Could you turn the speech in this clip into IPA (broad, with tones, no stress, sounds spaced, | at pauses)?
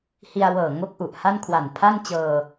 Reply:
h i˧ a̯ w ɤː˨˩ ŋ o˥˩ k̚ ʔ u˨˩ ʔ h a˥˩ n kʰ w a˨˩ n pʰ a˥˩ n t͡ɕ ɤː˧